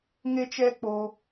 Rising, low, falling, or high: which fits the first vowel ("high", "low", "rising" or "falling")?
high